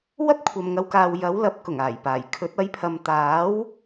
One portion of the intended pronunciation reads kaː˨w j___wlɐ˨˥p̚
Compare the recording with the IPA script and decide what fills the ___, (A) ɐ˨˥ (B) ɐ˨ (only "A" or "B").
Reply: A